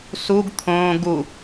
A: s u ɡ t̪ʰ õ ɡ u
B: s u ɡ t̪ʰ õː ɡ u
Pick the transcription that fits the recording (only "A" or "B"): B